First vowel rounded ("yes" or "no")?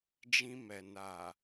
no